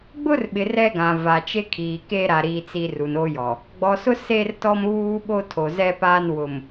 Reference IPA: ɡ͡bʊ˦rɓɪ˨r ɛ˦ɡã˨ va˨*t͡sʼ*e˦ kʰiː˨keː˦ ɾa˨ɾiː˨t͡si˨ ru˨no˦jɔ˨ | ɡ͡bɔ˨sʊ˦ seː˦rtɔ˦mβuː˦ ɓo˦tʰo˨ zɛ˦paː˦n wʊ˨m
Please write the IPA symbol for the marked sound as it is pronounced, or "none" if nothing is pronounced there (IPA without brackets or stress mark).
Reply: t͡ʃ